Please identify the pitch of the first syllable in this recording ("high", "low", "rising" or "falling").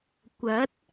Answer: rising